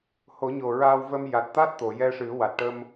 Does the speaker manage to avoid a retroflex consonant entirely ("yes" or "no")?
no